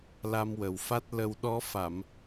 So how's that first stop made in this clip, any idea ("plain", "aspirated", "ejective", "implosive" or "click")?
plain